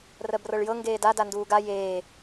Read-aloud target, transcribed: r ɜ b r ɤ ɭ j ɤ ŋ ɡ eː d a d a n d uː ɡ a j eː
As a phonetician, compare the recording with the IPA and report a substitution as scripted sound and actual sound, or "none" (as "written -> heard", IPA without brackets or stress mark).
none